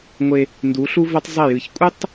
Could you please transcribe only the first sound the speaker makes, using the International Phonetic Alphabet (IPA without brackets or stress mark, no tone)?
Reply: ŋʷ